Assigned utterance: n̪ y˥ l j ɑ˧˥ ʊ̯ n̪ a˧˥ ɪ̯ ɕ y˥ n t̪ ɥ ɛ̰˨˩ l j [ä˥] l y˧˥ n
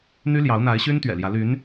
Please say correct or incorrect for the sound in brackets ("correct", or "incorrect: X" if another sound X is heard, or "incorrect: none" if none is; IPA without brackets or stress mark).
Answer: incorrect: ä˧˥